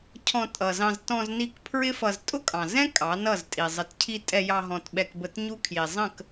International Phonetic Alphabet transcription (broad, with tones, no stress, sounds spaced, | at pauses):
cʰ ɔ̃˧ tʼ ʌ˨ z ɑ̃˧ z t ɔ̃˧ z n i˧ k pʰ ɹ ɪ˦ f ʌ˧ z tʼ ʊ˦ kʼ ɑ̃˨ z ɛ̃˦ kʼ ɑ˨˦ n ʌ˦˨ z tʼ i˨ zˤ ə˨ t cʰ i˧ tʼ ɛ˧ j ɑ˧ ɦ ɔ̃˨ t ɓ ɛ˧ k b ə˧ t ɲ u˦ kʰ j i˨ zˤ ə̃˦˨ k